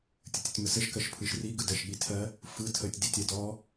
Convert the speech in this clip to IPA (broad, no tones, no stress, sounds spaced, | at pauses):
tʲ ə tʲ ə tʲ m ə s ə ʃ k ɜ ʃ pʰ ɯ ʃ r i ɡ ɯ d ɜ ʃ ɠ i tʰ ɜ | f ɯ tʰ ə tʲ d i tʲ ɜ d ɔ